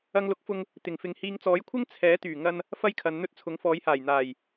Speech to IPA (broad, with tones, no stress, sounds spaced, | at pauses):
ɐ˧ ŋ l ʊ˨˥ k̚ f ʊ˧ ŋ | t̪ ɪ˨˩ ŋ f ɪ˨ ŋ h iː˨ ŋ t͡s ɔː˨˥ j kʷʰ ɪ˥ ŋ t͡sʰ ɛː˨˥ t̪ yː˨˩ ŋ ɐ˧ n | f ɐ˥ j kʰ ɐ˨˧ n n̪ ɵ˥ t̚ t͡sʰ ʊ˨˥ ŋ f ɔː˨˧ j h aː˨˩ j n̪ aː˨˩ j